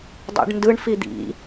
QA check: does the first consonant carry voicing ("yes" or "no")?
yes